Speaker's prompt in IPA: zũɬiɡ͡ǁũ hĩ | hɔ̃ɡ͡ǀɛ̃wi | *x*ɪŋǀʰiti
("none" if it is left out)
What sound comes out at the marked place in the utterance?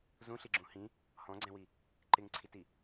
ǃ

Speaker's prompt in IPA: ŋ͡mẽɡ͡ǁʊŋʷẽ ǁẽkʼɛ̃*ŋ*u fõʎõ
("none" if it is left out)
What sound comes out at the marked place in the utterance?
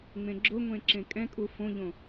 kʼ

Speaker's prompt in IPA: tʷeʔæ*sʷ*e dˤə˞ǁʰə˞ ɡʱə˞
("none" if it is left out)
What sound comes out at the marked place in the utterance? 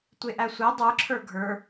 sʷ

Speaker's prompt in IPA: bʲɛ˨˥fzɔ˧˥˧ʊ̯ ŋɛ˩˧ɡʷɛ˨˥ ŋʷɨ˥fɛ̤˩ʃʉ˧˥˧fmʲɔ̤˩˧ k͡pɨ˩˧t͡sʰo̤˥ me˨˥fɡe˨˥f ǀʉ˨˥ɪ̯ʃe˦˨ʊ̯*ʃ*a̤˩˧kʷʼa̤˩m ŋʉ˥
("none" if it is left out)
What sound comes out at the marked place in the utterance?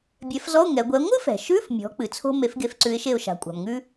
ʃ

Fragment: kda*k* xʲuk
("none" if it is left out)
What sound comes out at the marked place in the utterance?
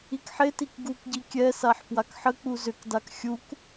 k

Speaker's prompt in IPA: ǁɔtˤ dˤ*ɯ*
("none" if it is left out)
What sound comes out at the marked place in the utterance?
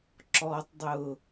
ʊ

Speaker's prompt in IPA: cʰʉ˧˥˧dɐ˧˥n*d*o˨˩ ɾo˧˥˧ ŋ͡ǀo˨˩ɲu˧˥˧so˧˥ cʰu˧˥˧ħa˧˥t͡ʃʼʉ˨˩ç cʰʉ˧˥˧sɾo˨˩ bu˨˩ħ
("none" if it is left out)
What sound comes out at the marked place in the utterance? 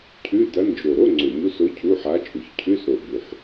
d͡ʒ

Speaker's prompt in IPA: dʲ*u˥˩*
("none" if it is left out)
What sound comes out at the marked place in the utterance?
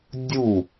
u˥˩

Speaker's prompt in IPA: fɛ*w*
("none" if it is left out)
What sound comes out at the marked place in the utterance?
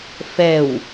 w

